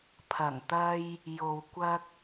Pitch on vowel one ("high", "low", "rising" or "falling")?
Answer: low